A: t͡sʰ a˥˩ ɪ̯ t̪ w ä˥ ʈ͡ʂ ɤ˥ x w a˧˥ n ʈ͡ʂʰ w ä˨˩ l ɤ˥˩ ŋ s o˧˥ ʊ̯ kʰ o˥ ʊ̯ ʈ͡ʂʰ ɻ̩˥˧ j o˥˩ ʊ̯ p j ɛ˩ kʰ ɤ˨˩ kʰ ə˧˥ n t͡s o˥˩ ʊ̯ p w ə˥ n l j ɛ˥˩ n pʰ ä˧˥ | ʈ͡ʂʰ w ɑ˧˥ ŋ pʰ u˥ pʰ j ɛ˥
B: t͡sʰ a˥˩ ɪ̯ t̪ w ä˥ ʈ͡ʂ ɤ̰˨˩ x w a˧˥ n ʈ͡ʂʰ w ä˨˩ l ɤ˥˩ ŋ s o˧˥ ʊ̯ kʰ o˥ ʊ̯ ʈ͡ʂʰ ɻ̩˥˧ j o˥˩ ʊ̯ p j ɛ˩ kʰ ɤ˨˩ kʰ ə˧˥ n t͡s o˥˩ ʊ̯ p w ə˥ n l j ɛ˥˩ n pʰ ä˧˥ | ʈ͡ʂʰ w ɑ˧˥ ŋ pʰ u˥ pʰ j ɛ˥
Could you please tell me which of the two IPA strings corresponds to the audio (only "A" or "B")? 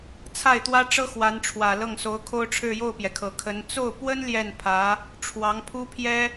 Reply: A